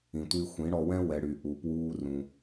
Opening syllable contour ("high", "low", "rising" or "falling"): low